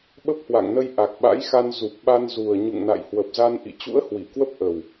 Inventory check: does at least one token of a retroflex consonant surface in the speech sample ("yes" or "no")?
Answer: no